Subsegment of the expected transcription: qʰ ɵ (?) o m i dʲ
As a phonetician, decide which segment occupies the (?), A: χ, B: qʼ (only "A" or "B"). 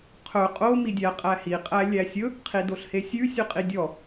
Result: B